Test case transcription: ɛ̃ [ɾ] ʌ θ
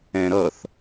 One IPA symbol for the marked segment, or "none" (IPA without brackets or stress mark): ɾ